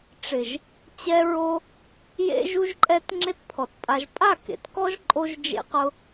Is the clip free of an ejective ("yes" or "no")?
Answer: no